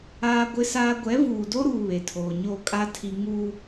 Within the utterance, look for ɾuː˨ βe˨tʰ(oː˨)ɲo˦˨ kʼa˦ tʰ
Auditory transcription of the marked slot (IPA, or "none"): oː˨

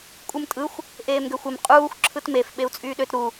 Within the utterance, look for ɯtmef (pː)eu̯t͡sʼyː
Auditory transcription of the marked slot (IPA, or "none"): ɓ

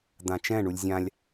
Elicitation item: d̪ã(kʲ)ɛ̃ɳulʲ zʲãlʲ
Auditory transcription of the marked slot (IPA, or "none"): t͡ʃ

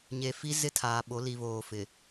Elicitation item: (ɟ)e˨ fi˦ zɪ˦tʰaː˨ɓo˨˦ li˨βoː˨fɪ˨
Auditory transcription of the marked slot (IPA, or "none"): ɲ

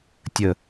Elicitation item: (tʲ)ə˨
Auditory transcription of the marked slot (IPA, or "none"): tʲ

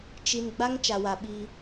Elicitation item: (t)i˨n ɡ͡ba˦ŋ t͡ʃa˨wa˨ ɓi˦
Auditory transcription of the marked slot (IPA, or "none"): t͡ʃ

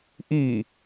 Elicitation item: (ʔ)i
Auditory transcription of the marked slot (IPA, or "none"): ʔ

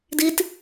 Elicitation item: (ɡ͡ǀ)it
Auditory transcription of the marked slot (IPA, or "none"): d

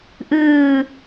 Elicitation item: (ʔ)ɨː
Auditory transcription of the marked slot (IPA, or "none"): ʔ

